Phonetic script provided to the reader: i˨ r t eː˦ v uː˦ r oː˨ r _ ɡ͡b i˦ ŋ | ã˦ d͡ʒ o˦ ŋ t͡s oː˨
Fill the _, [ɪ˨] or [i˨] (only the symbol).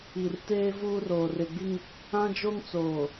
ɪ˨